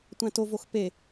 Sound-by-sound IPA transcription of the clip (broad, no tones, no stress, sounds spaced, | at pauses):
tʷ æ̃ t o v o x p e